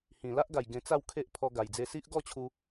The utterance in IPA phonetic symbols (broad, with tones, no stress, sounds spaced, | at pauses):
h ĩ˨˩ l a˦ ʔ ɡ a˨˩ j ɡ ẽ˧ t͡s a˥˧ w kʰ e˦ ʔ pʰ ɔ˧ ɡ a˨˩ j d͡z e˧ s i˦ ʔ ɡ ɔ˥˧ t͡ɕʰ u˧